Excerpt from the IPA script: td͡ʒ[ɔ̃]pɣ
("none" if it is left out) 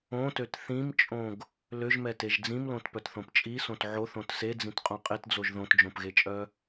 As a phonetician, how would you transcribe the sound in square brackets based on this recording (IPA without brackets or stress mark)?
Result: õ